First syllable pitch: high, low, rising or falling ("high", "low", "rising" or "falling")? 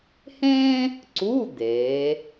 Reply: high